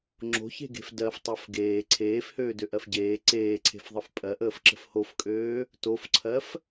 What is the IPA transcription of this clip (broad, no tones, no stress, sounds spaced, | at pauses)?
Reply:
ŋ͡ǁ o̤ ç e̤ ɡ e̤ f d ɜ f tˤ ɜ f ɡ eː ǀʰ eː f h øː d ø ʔ ɜ f ɟ eː ǀ eː ǀʰ e̤ f ðˤ ə f pʼ ɜ ʔ əː f ǁ ə̤ f h o f kʼ øː | t o f ǀʰ ɜ f